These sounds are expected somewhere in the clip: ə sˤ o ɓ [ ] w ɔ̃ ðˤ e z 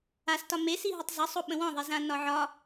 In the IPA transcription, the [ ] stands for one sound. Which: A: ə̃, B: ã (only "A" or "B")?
A